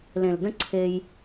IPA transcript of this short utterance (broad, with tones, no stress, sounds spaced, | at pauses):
l ẽ˨ l d ə̃˦ ǀʰ e˧ j